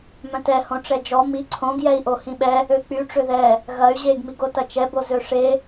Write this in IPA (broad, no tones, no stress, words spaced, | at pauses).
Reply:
mœ̃tɛ hõʈ͡ʂɛd͡ʒɔ mi ǀʰõɡ jɛi̯ʔohĩɓɛ | øk͡py ʈ͡ʂøðɛ | ɣɐy̯ ʑeɡ miɡotɐt͡ʃɛ bozøʂe